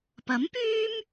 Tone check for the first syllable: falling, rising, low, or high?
rising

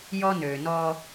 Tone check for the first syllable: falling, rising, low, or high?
high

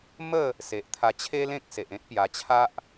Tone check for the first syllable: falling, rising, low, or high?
falling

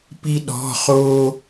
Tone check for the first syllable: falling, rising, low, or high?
high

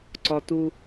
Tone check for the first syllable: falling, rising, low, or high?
high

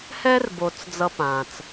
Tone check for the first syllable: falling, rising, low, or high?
high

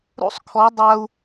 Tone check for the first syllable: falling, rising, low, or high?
high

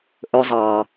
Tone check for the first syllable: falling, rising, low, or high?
high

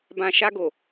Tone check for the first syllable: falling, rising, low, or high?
low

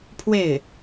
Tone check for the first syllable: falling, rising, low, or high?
falling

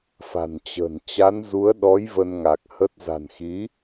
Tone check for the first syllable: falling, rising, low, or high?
low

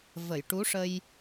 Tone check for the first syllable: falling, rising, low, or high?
low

